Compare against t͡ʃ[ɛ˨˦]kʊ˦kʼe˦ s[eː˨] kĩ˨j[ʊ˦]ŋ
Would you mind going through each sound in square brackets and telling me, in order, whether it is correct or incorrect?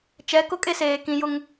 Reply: correct, correct, correct

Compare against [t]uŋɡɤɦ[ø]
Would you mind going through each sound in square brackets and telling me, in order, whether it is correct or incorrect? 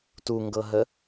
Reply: correct, incorrect: ə

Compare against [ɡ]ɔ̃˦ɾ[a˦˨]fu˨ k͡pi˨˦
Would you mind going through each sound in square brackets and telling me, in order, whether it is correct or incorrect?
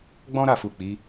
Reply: incorrect: ɡ͡b, correct

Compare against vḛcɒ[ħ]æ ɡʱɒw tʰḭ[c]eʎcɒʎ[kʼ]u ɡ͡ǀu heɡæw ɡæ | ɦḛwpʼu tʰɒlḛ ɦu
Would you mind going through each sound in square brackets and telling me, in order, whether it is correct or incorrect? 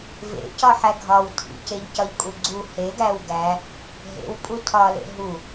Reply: correct, correct, correct

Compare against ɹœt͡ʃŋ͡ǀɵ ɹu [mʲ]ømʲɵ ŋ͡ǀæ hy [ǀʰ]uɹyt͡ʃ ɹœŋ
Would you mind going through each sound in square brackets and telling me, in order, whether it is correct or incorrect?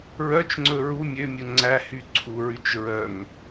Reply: correct, correct

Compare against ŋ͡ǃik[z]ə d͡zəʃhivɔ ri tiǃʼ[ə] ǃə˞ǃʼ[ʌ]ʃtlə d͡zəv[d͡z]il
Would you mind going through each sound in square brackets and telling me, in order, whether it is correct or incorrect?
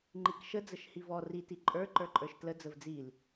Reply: incorrect: ʃ, incorrect: ə˞, incorrect: ə˞, correct

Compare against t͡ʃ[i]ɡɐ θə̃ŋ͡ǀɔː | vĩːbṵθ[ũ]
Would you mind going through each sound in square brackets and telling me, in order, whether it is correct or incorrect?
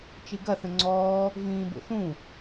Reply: correct, correct

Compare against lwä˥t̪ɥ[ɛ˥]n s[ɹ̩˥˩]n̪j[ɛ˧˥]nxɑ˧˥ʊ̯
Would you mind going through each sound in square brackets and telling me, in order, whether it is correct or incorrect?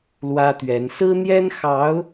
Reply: incorrect: ɛ˧˥, incorrect: ɹ̩˥, incorrect: ɛ˥

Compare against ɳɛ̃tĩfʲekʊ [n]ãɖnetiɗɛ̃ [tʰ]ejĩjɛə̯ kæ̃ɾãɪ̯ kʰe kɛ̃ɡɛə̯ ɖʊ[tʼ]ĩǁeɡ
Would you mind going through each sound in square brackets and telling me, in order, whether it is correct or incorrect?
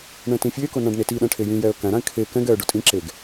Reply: correct, incorrect: ʈʰ, correct

